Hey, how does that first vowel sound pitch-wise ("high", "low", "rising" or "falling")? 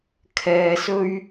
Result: low